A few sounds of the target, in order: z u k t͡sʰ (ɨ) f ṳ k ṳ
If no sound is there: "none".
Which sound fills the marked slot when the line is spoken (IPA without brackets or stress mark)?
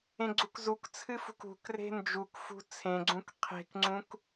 ɨ